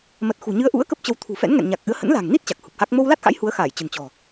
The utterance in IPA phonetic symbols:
m ə˨˩ t̚ x ṳ˨˩ ɲ ɨ˨˦ ə̯ ʔ ṵ˧˥ ə̯ k ə˦˥ p̚ t͡ɕ ə˧ w t̪ʰ ṳ˨˩ f ɛ̰˧˥ n ŋ ɛ̰˧˨ n ɲ a˨˩ k̚ ʔ ɨ˨˦ ə̯ h ə̰˧˥ n l a̤˨˩ ŋ n i˦˥ t̚ t͡ɕ a˨˩ k̚ h u˨˩ p̚ h a˦˥ k̚ m o˧ w l a˦˥ t̚ x a̰˧˥ j h u˨˦ ə̯ x a˧˩ j t͡ɕ ə̤˨˩ n t͡ɕ ɔ̤˨˩

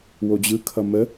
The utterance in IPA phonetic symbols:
w o d͡ʑ ɯ kʰ ʌ m ə

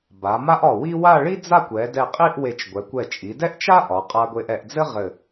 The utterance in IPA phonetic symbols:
b a˩˧ m a˥ ʔ ɒ˧˩ w i˥ w a˥˧ ɭ i˥ d͡z a˥˧ kʷ ɛ˩˧ d ɛ˧˩ qʼ i˥˧ ʔ w e˧˩ t͡ʃ ɡʷ ɛ˩˧ kʷ ɛ˧˩ t͡ʃʼ i˩˧ d ɛ˥ ʔ t͡ʃ a˥ ʔ ɒ˩˧ qʼ a˧ ɡʷ e˧ ʔ ɛ˩˧ ʔ d͡z ɘ˥ ʁ ɘ˧˩

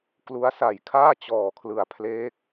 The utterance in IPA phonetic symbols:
k l u˦˥ a̯ s a˨˩ j kʰ aː˥˩ t͡ɕ ɔː˨˩ kʰ l ɯ˨˩ a̯ pʰ l eː˦˥ k̚

